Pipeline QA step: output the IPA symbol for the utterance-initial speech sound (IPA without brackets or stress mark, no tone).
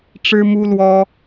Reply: ʈ͡ʂ